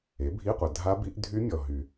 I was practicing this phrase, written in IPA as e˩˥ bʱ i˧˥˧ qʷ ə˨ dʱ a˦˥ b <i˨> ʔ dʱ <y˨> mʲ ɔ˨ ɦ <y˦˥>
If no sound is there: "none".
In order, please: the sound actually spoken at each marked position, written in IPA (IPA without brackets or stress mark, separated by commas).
i˦˥, y˦˥, y˨